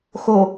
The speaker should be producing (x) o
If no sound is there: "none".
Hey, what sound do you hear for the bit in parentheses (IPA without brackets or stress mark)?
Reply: x